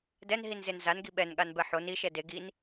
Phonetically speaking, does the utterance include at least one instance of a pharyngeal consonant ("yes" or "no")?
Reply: yes